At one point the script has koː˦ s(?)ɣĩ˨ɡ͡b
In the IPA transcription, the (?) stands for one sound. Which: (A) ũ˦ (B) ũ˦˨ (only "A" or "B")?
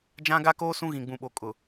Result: A